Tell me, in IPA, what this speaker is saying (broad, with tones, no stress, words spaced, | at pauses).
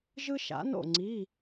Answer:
ʒɯ˥ʃa̰˨˥no̰˥˨ ŋ͡ǀi˧˥˧